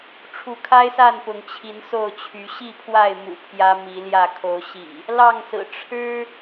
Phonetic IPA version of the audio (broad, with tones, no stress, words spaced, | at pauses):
ʈ͡ʂʰu˨˦kʰa˦ɪ̯sa˥˨n pʊ˨˦ŋt͡ɕʰi˨˦nso˥˨ʊ̯t͡ɕʰy˨˦ ɕi˥˨pʰwa˥˨ɪ̯ mṵ˨˩ pʰjä˦mi˨˦ljä˥˨ kʰo˨˦ʊ̯ɕḭ˨˩ | lɑ˥˨ŋsɹ̩˨˩ ʈ͡ʂʰɻ̩˦